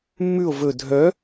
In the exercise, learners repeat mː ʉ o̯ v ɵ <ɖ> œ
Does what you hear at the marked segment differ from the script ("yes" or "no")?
yes